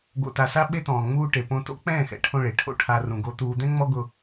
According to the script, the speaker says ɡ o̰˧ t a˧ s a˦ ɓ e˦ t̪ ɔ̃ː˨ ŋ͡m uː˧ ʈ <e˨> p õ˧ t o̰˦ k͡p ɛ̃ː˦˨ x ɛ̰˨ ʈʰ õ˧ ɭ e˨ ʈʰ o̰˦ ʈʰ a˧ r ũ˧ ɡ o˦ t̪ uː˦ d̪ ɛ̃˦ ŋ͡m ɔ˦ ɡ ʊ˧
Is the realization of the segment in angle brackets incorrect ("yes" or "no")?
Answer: no